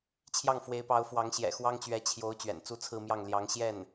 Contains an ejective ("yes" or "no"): no